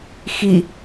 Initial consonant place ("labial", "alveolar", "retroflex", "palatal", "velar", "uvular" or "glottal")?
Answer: velar